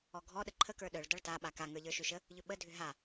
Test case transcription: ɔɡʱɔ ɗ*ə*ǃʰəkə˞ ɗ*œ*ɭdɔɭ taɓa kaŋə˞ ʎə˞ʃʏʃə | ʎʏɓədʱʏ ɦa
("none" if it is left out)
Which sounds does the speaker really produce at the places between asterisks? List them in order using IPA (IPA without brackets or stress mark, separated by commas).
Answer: ə, œ